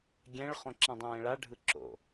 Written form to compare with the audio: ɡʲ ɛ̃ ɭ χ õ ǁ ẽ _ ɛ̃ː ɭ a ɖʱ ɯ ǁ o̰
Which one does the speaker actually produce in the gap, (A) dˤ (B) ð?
A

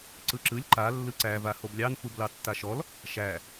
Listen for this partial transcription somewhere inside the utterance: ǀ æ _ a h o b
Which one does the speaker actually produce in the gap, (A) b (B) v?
B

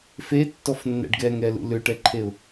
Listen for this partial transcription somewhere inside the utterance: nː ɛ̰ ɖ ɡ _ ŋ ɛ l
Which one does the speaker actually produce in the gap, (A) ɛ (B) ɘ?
A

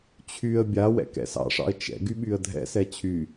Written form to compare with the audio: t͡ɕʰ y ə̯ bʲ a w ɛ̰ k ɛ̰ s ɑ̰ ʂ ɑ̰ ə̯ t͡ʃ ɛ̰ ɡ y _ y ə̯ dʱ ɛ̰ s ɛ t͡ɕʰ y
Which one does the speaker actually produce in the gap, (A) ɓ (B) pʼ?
A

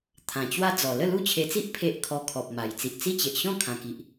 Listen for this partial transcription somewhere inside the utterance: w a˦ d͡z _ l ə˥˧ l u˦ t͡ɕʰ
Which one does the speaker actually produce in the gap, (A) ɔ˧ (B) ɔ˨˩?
B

